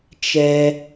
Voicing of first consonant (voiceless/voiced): voiceless